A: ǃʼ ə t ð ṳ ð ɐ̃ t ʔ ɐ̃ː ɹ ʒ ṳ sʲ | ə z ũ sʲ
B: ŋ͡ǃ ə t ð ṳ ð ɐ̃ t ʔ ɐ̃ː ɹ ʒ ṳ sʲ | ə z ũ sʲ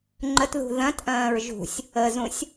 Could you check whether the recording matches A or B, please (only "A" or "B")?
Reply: B